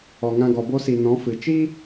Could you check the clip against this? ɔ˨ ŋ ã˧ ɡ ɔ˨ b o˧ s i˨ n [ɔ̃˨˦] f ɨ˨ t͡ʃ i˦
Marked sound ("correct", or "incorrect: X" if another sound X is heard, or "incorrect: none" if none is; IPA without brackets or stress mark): correct